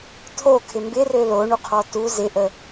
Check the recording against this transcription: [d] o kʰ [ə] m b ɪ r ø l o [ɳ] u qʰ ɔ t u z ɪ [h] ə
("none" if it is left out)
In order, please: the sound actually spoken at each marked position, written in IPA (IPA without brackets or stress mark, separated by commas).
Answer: tʰ, ɪ, ɳ, ʔ